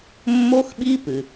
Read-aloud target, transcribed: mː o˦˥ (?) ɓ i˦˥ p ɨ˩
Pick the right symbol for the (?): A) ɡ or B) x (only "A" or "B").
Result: B